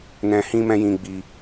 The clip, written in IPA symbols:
nɛ̃˧hĩ˦mɛ̃˦jĩ˧ ɡ͡bi˧

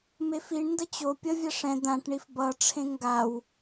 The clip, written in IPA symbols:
mefiɳndʌ t͡ɕo pʲʌvʲa ʂɛ̃ d̪ãʈɳif bʌʈ͡ʂʰẽ ŋɡaw

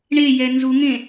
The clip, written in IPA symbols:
ɳejɛ nzuŋẽ

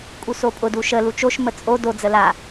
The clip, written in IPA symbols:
kʼusopʼʊ duʃə lut͡ʃoʃ mət͡sʼo do d͡zəla

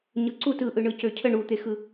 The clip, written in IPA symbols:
ɲɯǀut ɯʔɯ ɳɯcøcʰə ɳut̪exɯ

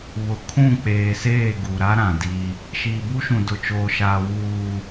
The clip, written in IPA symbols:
βʊ˨kʰũ˦˨k͡peː˨seː˦˨ ɡu˨ɾa˦ ɾã˨di˦ | ʃiː˨bu˦ʃũ˨ dʊ˨t͡ʃoː˨ʃaː˨ wuː˨

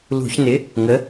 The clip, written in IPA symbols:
lṳ˧˩˧çnɪ˨˥ | ŋə˨˥

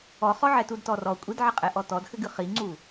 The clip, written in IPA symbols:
ɔχɔʕɛtud tɔrɔ kʷʼidʕɘqʼɛ ʔɔtɔdxɘɡɨ χiŋ͡ǀu

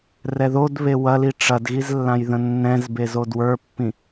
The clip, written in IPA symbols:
rɛðod βewɐli ʈ͡ʂɐdɣizlːãjðə̃ nːɛ̃z bezodwə˞pːĩ

